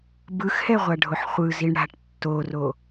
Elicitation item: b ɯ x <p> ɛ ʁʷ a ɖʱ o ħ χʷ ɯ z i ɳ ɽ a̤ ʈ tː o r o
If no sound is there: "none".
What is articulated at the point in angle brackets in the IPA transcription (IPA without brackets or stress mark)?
h